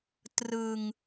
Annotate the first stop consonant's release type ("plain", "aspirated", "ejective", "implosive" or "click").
plain